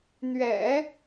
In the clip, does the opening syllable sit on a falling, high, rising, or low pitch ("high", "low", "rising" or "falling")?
low